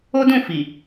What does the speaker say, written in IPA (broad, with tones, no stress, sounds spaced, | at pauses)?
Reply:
o˦ d ũ˦˨ f i˨